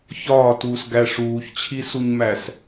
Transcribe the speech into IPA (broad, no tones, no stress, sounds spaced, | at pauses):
ç ɒː t uː s ɡ æ ʂ uː ç t͡ɕʰ i s u ɲ m æ s